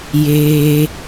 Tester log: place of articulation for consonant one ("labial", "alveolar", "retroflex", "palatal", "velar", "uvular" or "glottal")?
palatal